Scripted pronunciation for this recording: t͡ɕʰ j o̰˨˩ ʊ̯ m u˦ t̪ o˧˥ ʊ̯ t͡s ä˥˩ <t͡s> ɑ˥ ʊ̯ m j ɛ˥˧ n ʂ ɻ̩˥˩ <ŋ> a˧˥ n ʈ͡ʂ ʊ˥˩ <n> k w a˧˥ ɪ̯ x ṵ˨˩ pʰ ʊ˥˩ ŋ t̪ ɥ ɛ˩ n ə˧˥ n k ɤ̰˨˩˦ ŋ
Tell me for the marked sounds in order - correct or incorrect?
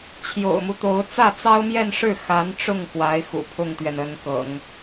correct, incorrect: x, incorrect: ŋ

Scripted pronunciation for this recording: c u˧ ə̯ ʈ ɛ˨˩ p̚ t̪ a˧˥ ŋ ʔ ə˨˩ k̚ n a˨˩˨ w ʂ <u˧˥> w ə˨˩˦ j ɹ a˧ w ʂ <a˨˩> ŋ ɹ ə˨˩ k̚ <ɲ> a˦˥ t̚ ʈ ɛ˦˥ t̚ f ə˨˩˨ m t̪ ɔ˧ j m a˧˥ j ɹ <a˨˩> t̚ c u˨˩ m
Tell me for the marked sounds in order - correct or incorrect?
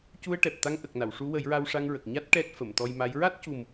correct, incorrect: a˧, correct, incorrect: a˦˥

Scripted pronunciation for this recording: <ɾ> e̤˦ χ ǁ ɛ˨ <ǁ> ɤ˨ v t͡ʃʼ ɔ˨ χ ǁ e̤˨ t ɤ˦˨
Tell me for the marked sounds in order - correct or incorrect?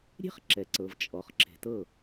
incorrect: ɾʲ, incorrect: ǀ

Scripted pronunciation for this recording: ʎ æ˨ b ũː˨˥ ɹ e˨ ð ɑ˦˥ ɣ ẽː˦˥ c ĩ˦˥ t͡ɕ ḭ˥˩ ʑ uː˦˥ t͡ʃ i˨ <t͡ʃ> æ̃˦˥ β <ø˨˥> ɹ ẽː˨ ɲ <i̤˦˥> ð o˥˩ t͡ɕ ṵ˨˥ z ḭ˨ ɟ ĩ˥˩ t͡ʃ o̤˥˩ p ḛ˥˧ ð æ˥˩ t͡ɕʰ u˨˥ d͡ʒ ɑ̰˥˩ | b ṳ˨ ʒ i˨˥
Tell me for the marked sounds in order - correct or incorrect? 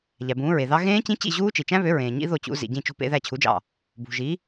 correct, correct, incorrect: ḭ˦˥

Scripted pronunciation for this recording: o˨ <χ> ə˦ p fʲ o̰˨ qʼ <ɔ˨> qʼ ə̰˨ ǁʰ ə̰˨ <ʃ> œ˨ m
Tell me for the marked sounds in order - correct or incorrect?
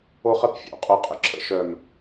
correct, incorrect: o˨, correct

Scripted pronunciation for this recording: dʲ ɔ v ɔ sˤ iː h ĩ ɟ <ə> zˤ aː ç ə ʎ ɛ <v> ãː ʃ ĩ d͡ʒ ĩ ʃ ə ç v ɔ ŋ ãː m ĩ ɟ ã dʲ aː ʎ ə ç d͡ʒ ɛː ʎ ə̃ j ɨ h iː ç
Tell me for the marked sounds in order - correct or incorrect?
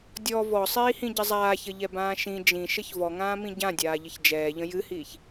correct, incorrect: b

